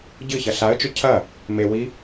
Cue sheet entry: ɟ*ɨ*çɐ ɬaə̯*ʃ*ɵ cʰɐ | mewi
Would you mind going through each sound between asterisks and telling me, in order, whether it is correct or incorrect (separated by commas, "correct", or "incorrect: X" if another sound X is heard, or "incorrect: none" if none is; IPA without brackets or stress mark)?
correct, incorrect: t͡ʃ